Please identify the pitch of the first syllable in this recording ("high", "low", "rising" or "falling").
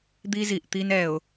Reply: high